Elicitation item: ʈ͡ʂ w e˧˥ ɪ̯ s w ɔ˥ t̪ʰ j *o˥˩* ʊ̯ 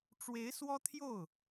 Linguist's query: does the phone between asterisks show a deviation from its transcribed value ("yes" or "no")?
no